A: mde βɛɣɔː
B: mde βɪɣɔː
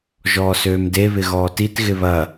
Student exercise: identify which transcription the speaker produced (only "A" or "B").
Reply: B